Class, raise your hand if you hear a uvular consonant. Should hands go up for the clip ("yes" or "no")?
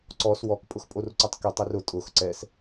no